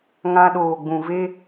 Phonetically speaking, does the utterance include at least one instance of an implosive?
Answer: yes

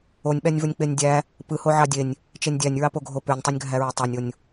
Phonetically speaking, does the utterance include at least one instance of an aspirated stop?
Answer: no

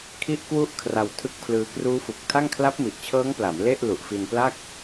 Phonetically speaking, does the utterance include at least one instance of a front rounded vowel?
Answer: no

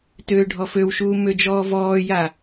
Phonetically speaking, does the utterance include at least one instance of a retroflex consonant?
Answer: yes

